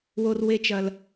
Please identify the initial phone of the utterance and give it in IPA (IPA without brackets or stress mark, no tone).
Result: w